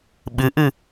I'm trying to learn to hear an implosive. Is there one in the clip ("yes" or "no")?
yes